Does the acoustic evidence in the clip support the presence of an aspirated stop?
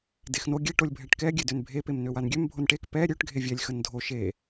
no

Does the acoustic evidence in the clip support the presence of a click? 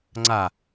yes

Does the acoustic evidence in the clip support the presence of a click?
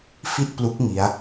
no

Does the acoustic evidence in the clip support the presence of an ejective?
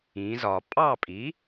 yes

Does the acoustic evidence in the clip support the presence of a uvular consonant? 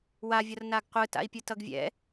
yes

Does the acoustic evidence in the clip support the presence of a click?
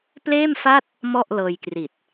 no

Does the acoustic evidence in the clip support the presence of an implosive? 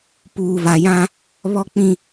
no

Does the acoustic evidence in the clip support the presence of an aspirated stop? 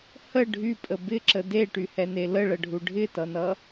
no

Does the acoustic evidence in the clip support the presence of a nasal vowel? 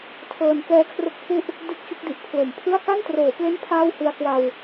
no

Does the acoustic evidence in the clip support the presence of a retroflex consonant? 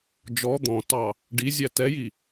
yes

